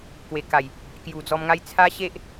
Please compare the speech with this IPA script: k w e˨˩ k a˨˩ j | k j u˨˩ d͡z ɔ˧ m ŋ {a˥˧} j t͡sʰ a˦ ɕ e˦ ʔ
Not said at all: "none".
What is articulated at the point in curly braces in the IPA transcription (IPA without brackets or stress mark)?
a˦